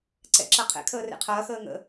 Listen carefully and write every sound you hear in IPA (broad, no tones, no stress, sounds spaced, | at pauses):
ǀ ɛ̰ ǁ ɐ qʰ ɛ̰ kʰ əː r ḛ qʰ ɐː x əː ŋ ə̰